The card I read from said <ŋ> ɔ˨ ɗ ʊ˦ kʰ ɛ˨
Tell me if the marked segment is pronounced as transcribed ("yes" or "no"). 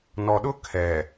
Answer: no